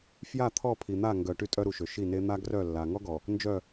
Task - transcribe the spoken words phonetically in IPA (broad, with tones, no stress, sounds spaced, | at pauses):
f j a˦˨ t̪ʰ ɔ˦˨ pʰ i˨ n̪ a˦˨ ŋ ɡ œ˨ ʈ y˦ tʼ œ˦ ɾ u˨ ʃ ø˨ ʃ i˦˨ n e˦ n̪ a˦ ɡ r œ˦˨ lː a˨ ŋ ɔ˦ ɡ ɔ˨ | n d͡ʒ œ˦˨